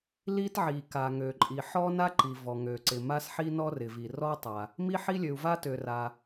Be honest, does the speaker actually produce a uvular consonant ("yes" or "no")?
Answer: no